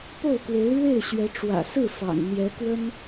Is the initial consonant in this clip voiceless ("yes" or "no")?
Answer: yes